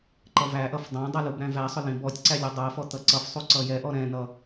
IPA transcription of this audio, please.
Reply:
ǃ ʌ v æ ʔ ʌ f dˤ æ̃ dˤ ʌ l u b ɾ æ̃ v æ sˤ ʊ l ĩ b ɔ tʲ ǀ æ lʲ ʌ dˤ ɜ f ɔ t̪ ʌ ǀ ʌ f sˤ u ǀ ʌ j ɛ ʔ ɔ ɾ ɛ̃ n̪ ʌ

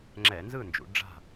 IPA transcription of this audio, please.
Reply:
ŋ͡ǁ ɛ˧˩˧ n z ɯ˥˨ n d͡ʒ ṵ˩˧ ɖ͡ʐ a̤˥˨

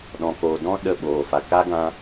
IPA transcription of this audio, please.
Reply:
ɗ ɔ̃˨ k oː˨ d ɔ̃˦ ɗ ə˦˨ ɓ oː˨ f a˨ k a˦ ɡ ã˦

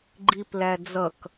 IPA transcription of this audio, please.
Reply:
ɡ͡ǃ i p l æ d͡z ʌ k

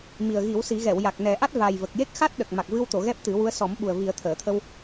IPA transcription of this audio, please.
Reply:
m i˨˩ ə̯ ɣ i˨˩˦ w s i˨˩˦ ɣ ɛ˨˩˨ w j a˨˩ k̚ n ɛ˨˩˦ ʔ a˦˥ t̚ v aː˨˩ j v ə˨˩ k̚ j e˦˥ k̚ x a˦˥ t̚ ɗ ə˨˩ k̚ m a˨˩ k̚ v ɨ˧ w t̪ o˨˩˨ ɣ ɛ˦˥ p̚ t̪ ɨ˨˩˦ w u˧˥ ə̯ s ɔ˨˩˦ m ɓ u˨˩ ə̯ v i˨˩˦ ə̯ t̪ʰ əː˨˩˨ t̪ʰ ə˧ w

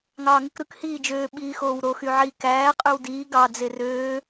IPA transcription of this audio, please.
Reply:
ŋ ɑː ŋ ɯ k ɾ ɯ k h iː d͡ʒ øː ɓ iː x oː w ɾ o x y ʕ i k æː qʼ y w d iː ɡ ɑ d͡z e r øː

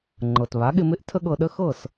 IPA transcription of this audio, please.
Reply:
ŋ͡ǃ ɤ˩ t β a˩˥ ɠ ɪ˧ m ɪ˥ ʔ tʰ ə˥ ɠ ɤ˧ ɗ ə˥ x ɤ˥˩ s

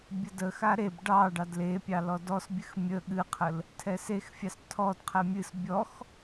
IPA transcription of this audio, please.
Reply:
bʲ ə d ə x a ɾ e b ɖ ɑ ɖ ɑ d l e pʲ ɑ l ɔ d ɔ s bʲ ɨ x mʲ ə ɠ ɨ qʰ ə l | tʰ ɛ s e x fʲ ɑ s tʰ ɔ d qʰ ɛ mʲ ɨ s bʲ ɔ x

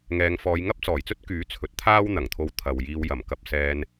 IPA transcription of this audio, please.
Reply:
ŋ ɛː˨˧ ŋ f ɔː˨˧ j ŋ ɐ˥ p̚ t͡s ɔː˨˩ j t͡s ɵ˥ t̚ k yː˨˥ t͡sʰ ɵ˨˥ t̚ t̪ʰ aː˥ w n̪ ɐ˨˩ ŋ t̪ʰ o˧ w t̪ʰ ɐ˨ w j iː˧ w j ɐ˨˩ m k ɐ˧ p̚ s ɛː˧ n

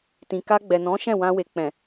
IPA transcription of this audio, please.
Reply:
t ĩ˨ k a˧ ɡ͡b ɛ˨ n ɔ̃˨˦ ʃ ɛ̃˦˨ w ã˧ w e˨ k͡p ɛ̃˨

